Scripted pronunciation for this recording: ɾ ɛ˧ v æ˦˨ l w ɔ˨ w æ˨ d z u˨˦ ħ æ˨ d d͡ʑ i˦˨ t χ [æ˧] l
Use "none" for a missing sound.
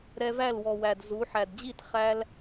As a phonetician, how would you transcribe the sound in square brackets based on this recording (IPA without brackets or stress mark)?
æ˧